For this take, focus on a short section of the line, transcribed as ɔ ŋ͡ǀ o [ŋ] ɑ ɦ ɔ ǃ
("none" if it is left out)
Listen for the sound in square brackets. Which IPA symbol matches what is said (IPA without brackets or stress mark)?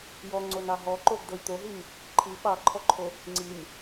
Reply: n